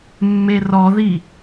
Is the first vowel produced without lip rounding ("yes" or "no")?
yes